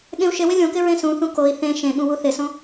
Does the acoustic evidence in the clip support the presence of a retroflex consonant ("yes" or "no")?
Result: no